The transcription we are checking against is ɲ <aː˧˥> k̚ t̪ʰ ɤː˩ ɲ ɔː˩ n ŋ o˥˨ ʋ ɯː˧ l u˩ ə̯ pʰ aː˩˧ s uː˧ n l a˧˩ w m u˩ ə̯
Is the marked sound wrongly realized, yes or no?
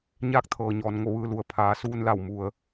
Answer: no